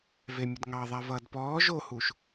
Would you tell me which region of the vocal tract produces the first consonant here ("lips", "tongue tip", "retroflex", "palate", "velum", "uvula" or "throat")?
lips